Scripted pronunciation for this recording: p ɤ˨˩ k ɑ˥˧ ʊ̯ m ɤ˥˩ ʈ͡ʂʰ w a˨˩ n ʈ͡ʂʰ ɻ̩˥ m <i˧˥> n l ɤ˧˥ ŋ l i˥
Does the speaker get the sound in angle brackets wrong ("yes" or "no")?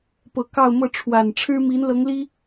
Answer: no